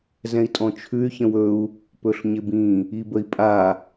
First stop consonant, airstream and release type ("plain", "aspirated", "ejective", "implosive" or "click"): ejective